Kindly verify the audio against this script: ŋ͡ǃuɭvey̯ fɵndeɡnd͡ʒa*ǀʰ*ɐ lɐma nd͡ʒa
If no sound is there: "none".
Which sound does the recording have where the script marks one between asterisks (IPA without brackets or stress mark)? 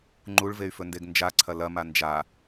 ǀʰ